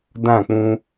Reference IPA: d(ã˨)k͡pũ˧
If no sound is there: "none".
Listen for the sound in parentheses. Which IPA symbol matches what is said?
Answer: ã˦˨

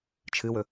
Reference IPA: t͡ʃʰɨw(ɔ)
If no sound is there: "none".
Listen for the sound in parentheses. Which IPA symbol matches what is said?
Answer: ɵ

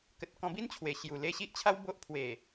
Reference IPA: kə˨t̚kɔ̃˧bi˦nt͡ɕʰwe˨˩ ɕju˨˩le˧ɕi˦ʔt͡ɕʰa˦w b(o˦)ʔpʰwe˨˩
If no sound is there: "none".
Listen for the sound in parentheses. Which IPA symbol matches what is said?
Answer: o˦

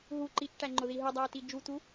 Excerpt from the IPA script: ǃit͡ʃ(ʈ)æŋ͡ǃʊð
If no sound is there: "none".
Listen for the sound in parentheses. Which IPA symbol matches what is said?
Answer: ʈ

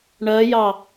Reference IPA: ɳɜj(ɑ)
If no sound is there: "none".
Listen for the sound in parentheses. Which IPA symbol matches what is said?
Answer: ɑ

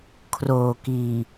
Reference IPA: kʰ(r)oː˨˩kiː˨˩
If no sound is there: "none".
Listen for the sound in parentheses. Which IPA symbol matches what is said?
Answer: r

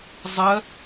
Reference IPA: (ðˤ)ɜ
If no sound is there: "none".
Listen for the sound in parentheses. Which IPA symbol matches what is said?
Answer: zˤ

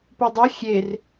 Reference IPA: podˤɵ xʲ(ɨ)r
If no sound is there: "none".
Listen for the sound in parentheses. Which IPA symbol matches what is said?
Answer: e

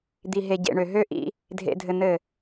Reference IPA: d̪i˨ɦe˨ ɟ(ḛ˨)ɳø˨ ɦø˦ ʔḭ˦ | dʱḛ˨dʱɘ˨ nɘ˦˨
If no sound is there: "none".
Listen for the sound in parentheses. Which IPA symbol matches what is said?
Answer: ḛ˨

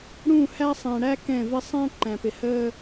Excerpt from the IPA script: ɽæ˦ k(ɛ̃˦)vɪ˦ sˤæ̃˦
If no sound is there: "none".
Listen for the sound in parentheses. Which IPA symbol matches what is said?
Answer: ɛ̃˦˨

